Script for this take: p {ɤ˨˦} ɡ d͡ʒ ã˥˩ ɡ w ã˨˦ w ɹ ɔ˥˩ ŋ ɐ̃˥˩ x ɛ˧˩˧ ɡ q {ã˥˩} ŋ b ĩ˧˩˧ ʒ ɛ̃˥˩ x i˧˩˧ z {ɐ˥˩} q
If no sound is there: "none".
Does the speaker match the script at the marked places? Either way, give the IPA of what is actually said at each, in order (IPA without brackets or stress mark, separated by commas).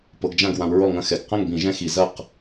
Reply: ɤ˨˦, ɐ̃˥˩, ɐ˥˩